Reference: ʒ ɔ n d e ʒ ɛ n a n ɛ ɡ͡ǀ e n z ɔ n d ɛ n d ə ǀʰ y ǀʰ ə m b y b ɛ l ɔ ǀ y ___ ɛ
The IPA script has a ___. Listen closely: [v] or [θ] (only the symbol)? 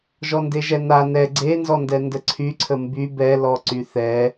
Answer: θ